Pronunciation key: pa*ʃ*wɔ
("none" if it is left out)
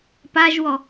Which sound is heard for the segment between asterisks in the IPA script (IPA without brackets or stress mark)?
ʒ